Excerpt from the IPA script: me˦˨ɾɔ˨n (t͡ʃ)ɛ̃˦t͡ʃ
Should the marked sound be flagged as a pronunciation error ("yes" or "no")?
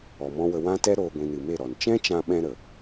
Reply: no